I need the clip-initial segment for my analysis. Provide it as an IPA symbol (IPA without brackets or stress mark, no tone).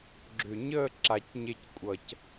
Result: ɡ͡ǁ